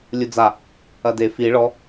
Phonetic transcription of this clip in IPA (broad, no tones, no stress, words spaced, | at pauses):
lʲud͡za | ɐde fi ɭɔ